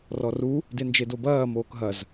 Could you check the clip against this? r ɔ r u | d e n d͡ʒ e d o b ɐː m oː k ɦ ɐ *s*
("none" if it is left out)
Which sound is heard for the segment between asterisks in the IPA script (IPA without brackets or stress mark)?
z